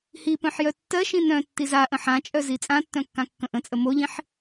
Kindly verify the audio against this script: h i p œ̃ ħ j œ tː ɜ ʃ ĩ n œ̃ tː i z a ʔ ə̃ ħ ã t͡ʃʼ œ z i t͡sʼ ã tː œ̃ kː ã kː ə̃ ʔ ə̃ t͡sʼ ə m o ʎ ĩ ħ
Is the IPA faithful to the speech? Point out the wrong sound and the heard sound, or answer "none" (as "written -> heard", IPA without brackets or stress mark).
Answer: none